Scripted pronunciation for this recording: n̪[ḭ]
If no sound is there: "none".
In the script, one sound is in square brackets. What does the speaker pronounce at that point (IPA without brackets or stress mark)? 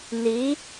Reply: i